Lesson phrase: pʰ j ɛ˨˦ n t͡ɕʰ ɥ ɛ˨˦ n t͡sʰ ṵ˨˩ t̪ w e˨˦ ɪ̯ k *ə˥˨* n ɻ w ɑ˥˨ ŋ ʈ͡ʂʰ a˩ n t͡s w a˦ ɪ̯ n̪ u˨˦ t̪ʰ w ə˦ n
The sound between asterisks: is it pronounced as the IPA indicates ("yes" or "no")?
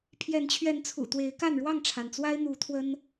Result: no